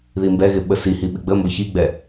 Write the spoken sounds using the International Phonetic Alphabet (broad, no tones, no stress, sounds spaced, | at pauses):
ð i m b ɛ ɣ ɪ ɓ ə s i h i ɓ ɪ ɡ͡b ə m b ʌ ç i ɡ͡b ɛ